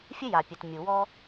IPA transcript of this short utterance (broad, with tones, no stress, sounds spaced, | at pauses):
fʲ ɘ˥ j a˩ pʲ ɘ˩ t mʲ u˩ w ɔ˥